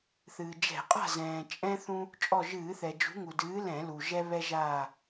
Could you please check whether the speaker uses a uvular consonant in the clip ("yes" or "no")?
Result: yes